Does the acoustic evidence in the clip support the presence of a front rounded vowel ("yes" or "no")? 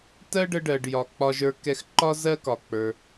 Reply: no